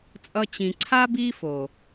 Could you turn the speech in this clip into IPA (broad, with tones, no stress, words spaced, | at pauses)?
t͡sʼʌ˦t͡ɕĩ˧ ǀʰa˦ bi˦fo˨